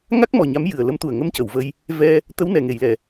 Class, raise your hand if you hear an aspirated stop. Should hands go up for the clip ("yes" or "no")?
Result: no